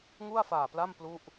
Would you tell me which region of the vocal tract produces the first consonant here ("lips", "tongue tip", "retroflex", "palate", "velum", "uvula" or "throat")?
velum